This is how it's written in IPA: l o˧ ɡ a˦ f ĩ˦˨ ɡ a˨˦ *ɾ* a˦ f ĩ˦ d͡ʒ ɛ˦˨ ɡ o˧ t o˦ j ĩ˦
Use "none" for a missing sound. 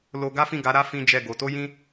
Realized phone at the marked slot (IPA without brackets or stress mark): ɾ